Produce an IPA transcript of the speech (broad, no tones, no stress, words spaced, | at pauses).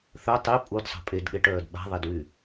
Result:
θœ tˤi pʼudsˤə̤ pʼedɠeʈœːd ɓa̤ðˤedwy